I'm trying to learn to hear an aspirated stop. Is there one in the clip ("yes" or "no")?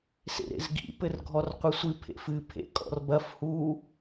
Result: yes